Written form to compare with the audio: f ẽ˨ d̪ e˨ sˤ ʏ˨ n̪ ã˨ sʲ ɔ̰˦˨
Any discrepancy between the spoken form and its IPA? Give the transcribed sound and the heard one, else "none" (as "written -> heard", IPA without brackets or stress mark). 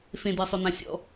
none